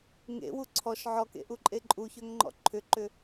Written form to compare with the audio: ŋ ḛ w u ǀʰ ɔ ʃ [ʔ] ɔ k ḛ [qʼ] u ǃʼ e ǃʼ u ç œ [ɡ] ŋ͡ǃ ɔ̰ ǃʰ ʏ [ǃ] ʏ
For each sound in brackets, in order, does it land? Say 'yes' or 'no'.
no, no, no, yes

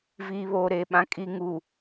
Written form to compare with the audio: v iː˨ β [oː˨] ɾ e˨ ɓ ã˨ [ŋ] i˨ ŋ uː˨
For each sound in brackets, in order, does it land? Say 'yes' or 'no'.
yes, no

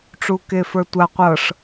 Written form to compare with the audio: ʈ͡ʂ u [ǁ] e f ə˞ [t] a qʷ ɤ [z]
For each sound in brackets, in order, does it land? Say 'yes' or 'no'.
no, no, no

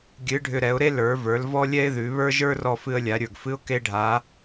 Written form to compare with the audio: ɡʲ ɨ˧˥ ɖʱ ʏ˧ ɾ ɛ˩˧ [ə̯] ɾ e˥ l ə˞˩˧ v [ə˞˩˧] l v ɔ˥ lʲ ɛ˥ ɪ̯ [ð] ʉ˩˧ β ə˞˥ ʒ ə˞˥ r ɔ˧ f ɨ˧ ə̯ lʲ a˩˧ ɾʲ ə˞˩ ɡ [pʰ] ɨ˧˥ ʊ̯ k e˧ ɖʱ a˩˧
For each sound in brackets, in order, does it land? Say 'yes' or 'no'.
no, yes, yes, no

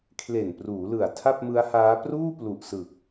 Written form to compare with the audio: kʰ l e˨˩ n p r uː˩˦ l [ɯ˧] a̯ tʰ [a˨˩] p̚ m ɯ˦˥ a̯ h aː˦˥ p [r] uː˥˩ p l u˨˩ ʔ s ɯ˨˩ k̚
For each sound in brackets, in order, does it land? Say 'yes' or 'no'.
no, no, yes

